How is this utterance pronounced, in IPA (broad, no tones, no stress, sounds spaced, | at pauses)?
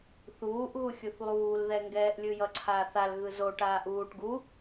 θ uː ʔ ɣ u xʲ u θ lˠ uː l ð ɛ ŋ ɡ ɛː ʔ lʲ ɯ j ʌ ǀʰ aː θ a l ɣ ɯ z o ʈ aː ʔ uː ʈ ɡ u